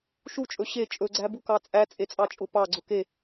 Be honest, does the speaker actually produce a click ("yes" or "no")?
yes